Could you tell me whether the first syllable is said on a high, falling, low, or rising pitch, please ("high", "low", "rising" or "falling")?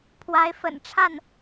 rising